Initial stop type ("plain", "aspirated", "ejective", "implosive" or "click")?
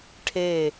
aspirated